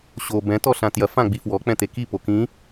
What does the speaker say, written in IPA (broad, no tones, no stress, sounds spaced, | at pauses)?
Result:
ɕ o b ɛ̃ t ɔ ɬ ã t j ɐ f ã ɡ͡b i f w ɔ k͡p ɛ̃ t̪ e k i p o k ĩ